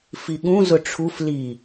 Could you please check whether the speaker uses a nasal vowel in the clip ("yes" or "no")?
yes